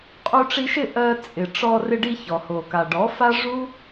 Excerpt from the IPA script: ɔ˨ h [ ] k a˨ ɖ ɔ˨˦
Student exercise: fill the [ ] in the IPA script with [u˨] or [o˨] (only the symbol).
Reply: o˨